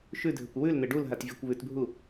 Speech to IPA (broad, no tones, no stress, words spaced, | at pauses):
ʃʉdʱɘkʷ wʉln̪ɘ ɖulɦatvʲakʷ βʉtbʱu